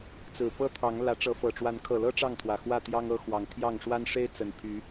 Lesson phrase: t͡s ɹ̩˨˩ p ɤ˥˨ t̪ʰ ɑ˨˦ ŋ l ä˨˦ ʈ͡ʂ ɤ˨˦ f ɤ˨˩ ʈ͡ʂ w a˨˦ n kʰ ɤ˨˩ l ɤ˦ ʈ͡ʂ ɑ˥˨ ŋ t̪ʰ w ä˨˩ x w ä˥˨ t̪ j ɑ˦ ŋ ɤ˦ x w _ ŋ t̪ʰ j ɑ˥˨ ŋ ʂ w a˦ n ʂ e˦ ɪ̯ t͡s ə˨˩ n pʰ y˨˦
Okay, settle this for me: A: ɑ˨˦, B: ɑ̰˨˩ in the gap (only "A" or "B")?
A